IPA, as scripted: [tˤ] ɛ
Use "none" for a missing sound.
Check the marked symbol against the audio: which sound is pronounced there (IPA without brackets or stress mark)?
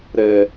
ɾ